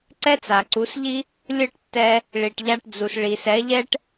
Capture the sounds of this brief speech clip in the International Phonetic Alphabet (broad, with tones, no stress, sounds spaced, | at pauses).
ǀ ɛ˥ t͡s a˩ ǀ u˩˥ s ʎ i˥ | lʲ ɯ˥˩ ʈ tː ɛ˧ | ɭ i˩ ʈ ʎ a˧ ʈ d͡z u˩ s ɭ i˩ s ɛ˩˥ ʎ ɛ˥ ʈ